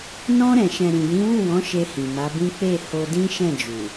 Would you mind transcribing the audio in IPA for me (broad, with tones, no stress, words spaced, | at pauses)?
nɔ̃˧ɾɛ̃˨ʃɛ̃˨ ɾĩ˨jĩ˨˦wu˦˨wɔ̃˨˦ ʃe˧hĩ˨ma˨˦bĩ˦ k͡pe˦˨ho˧dĩ˦ ʃɛ̃˦˨d͡ʒu˨